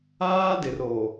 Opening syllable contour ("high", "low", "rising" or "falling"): high